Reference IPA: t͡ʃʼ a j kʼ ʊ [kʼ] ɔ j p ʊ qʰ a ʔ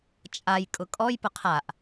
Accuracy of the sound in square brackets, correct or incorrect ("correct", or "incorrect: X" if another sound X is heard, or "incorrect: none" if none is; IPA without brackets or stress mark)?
correct